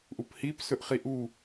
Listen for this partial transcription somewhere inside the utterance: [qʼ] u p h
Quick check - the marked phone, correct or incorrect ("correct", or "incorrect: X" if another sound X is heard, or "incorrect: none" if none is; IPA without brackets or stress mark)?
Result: incorrect: ʔ